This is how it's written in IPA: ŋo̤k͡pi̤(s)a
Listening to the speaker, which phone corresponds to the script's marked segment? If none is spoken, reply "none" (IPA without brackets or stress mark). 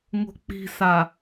s